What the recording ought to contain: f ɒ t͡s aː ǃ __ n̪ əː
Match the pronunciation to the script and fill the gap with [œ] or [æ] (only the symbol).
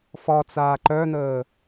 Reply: œ